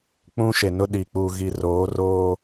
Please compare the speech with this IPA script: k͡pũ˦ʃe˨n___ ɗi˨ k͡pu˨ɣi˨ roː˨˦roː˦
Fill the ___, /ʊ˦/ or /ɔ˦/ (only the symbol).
ʊ˦